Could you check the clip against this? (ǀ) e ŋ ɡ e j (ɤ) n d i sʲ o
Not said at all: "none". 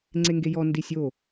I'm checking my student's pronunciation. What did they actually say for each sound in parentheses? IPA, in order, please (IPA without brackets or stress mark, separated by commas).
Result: ŋ͡ǀ, ɔ